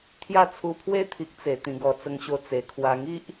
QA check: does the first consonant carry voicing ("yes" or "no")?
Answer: no